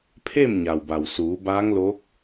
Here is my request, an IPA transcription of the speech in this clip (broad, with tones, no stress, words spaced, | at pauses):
pʰe˥˨mɲa˩wba˩wsuː˩˧ baː˧˥ŋloː˧˥k̚